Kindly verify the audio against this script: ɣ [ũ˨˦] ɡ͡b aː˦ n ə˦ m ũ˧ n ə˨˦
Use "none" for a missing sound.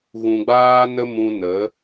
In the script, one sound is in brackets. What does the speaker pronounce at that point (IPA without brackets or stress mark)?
ũ˧